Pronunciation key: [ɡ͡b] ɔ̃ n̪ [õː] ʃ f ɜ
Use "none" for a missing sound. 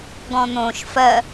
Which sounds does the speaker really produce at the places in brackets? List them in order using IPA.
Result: ɡ, õː

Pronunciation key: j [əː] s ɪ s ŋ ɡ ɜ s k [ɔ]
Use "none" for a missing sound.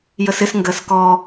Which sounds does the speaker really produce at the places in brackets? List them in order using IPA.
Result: ə, ɔ

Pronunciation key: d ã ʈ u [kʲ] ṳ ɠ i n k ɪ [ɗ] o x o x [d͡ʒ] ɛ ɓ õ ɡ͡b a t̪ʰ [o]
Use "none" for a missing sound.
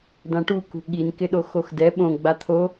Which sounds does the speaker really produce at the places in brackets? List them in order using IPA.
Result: k, ɗ, d, o

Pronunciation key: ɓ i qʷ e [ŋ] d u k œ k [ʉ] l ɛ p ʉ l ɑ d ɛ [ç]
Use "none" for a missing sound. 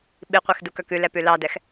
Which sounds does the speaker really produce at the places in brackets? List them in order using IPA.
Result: x, ʉ, x

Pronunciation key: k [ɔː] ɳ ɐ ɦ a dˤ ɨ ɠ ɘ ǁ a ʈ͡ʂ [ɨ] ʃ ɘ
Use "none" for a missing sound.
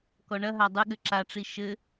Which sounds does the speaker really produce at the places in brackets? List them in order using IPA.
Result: ɔ, i

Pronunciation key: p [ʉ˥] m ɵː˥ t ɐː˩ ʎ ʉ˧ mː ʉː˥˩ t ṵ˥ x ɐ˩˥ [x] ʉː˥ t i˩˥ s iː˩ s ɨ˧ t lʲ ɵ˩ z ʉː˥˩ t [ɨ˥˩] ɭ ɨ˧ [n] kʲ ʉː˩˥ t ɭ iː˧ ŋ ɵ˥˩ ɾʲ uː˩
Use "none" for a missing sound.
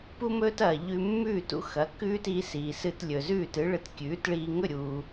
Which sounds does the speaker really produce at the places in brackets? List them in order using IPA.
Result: u˥, k, ɨ˩˥, t

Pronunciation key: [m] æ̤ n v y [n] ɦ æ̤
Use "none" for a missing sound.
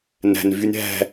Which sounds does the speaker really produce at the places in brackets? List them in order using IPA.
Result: n, n

